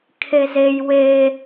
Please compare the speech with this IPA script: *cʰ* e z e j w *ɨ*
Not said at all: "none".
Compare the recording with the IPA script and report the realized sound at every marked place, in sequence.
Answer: kʰ, e

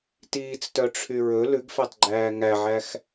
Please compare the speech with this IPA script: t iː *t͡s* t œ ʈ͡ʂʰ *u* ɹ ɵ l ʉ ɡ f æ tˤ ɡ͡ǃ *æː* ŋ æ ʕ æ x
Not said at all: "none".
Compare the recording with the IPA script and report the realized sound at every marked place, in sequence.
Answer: t͡s, y, æː

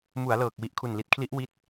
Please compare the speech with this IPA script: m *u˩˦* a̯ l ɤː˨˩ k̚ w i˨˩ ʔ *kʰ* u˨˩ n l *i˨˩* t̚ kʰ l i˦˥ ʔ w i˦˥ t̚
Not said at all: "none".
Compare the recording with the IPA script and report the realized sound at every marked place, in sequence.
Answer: u˩˦, kʰ, i˨˩

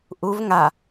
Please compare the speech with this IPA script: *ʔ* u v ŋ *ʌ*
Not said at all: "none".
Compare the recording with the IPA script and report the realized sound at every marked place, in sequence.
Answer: ʔ, a

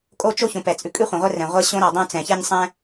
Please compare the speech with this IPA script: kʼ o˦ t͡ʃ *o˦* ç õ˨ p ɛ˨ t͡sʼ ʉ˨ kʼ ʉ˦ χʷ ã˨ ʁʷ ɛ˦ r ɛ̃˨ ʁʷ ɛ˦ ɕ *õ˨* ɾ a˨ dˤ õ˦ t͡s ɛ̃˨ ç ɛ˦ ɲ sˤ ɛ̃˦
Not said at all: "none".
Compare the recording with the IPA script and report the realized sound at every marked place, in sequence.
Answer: o˦, õ˦

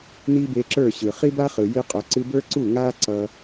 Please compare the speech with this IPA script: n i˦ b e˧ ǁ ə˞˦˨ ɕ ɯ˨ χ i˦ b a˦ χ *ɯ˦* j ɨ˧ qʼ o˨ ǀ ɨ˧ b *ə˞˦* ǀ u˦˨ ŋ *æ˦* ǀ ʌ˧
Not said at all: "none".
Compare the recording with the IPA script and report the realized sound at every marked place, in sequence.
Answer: ɯ˨, ə˞˦, a˦

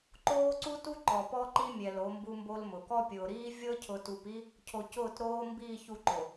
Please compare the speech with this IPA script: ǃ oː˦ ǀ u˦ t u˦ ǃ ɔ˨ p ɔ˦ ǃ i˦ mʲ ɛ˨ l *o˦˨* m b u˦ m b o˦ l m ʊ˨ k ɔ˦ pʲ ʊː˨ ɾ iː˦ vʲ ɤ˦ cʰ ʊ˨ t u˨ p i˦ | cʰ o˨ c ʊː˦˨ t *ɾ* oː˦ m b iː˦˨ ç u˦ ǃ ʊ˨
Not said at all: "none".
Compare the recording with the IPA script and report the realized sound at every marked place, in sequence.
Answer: o˨˦, ɾ

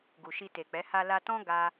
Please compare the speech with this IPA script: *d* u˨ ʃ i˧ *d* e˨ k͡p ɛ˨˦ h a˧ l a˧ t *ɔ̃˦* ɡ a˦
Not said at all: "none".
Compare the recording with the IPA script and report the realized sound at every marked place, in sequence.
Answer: ɡ, t, ɔ̃˦

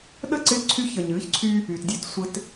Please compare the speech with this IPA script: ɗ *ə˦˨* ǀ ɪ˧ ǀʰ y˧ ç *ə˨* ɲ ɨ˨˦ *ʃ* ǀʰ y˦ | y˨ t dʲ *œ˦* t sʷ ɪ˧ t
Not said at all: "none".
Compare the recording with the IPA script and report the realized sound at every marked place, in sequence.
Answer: ə˦˨, ə˨, ç, œ˦

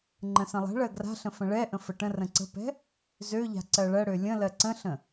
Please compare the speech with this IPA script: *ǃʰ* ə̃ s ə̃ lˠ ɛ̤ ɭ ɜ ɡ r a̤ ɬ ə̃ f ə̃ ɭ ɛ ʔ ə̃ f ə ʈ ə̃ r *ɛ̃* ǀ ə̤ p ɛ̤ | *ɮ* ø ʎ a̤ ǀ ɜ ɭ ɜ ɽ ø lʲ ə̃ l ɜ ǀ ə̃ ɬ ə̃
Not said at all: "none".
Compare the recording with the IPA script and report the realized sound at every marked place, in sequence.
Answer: ŋ͡ǃ, ə̃, z

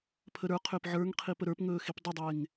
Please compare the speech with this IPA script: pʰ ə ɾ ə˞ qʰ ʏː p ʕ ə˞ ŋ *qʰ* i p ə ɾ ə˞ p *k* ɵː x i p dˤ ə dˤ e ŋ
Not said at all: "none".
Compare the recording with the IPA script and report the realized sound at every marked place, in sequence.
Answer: qʰ, ŋ

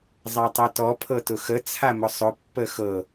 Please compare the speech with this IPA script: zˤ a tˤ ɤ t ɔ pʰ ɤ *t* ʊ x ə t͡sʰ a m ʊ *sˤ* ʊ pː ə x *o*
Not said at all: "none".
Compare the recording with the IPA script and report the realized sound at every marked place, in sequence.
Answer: t, sˤ, ɤ

